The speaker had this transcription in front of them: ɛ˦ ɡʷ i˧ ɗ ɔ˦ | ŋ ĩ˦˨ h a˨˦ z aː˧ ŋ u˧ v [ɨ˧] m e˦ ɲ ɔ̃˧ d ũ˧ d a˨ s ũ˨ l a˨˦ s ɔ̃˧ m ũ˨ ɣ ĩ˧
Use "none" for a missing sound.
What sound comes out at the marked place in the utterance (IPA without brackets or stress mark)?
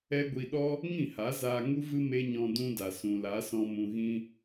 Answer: ɨ˧